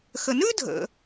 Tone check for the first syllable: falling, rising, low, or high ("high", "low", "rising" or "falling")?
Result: low